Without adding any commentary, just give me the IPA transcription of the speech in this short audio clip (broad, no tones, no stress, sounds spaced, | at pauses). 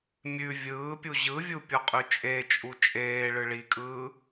mʲ ʉ vʲ ɯː pʲ u ʑ ɯ vʲ u pʲ ɔ qʼ ʉ t͡ʃʼ e t͡ʃʼ u t͡ʃʼ eː ɭ ɯ ɭ i kʼ ɯː